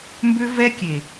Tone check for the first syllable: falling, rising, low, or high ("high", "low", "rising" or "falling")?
high